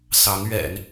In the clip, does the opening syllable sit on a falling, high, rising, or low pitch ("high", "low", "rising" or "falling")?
rising